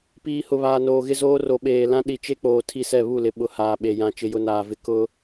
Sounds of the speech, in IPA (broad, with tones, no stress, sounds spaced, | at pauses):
p iː˨ h ʊ˨ β aː˨ n oː˨ ɣ ɪ˦ z oː˦ r o˨ ɓ eː˨ l ã˦ ɗ i˨ t͡ʃ e˦ k͡p oː˨ tʰ i˦ s ɛ˦˨ β u˦˨ l ɪ˨ ɓ ʊ˨ h aː˨ ɓ e˨ j ã˦ t͡ʃ ɪ˦ j ʊ˦ n aː˨ v ɪ˦ k ʊ˦